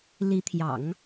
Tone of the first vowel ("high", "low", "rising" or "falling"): rising